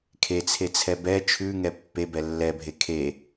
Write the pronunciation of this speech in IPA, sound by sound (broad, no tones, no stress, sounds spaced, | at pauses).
kʰ e t͡sʰ e t͡sʰ ɛ b ɛ t͡ʃʰ ʉ ŋ ɛ pː e b ɛ lː ɛ bʱ e kʰ e